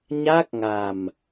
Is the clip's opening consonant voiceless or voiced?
voiced